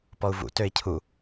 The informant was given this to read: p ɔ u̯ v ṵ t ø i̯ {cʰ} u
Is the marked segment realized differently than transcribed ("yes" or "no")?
no